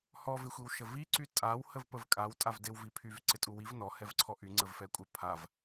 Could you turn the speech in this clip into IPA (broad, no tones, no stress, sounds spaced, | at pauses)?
h ɔ v ɪ xʷ i w ʃ ə v i ǀ y tʼ a w h ə v p ə v kʼ a w tʼ a v d ɪ w v i pʰ y v ǀ ɪ tʼ u w i v n ɔ h ɛ v ǀʰ ɔ ʔ y ŋ͡ǀ ə v f ɛ kʷʼ ə pʰ a v